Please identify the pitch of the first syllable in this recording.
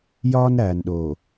high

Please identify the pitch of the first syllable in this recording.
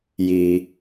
low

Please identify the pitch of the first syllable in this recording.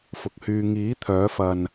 low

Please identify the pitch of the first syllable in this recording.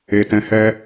low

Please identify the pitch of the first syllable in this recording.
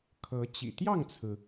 rising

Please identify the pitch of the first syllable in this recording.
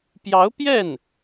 rising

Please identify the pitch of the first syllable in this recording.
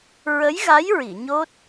rising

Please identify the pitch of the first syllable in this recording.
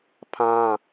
high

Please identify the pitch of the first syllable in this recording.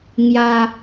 high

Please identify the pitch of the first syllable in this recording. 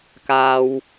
low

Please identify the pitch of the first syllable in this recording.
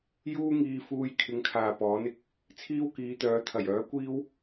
high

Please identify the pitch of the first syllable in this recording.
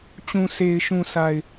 low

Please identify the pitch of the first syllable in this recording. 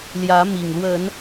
rising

